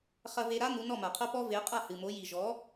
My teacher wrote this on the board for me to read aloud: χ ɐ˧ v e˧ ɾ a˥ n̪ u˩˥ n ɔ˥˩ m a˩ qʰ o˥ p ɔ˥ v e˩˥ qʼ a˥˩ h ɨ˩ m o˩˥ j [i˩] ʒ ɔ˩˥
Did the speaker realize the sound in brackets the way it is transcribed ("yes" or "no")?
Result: yes